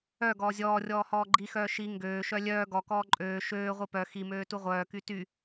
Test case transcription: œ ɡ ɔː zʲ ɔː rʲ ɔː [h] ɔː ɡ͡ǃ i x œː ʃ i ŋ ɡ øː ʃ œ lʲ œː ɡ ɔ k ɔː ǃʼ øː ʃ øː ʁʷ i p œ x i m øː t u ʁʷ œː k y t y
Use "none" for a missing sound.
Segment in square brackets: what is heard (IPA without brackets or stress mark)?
h